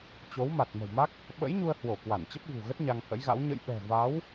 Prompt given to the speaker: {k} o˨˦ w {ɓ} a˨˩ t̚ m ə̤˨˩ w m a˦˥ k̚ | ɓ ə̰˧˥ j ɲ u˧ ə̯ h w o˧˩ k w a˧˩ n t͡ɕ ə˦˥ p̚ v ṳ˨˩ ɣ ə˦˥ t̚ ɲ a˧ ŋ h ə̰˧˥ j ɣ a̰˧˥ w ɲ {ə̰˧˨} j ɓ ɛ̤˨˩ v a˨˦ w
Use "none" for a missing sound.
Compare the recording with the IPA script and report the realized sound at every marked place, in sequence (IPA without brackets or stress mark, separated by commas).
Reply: t͡ɕ, m, ə̰˧˨